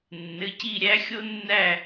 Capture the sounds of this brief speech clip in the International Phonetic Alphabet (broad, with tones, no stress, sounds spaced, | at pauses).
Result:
nː ɘ˩˧˩ c i˦˨ ɾʲ æ˦˥ xʲ o˦˥ nː æ˦˨